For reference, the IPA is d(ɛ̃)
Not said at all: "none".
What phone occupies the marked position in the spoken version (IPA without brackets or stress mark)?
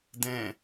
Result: ɛ̃